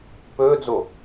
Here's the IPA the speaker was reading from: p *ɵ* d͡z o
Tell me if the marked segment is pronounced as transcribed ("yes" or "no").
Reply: no